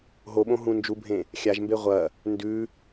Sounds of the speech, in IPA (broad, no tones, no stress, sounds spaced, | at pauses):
ɦ o ɓ õ ɦ ũ n d͡ʒ u bʱ ẽ | xʲ a ʒ m b e ʁʷ ɐ | n d ʉ